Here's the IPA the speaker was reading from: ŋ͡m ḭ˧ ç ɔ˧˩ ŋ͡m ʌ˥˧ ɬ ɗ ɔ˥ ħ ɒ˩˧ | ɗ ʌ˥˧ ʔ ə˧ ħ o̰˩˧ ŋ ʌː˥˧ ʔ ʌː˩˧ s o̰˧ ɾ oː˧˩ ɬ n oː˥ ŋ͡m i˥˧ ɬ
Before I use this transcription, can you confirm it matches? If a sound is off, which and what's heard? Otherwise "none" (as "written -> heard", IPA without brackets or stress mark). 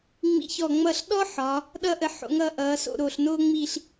none